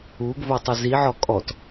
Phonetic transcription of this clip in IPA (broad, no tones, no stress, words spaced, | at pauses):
uɡvotˤɪ ziʕɔ kʼɔt